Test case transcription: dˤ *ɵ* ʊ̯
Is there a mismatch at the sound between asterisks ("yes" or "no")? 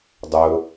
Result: no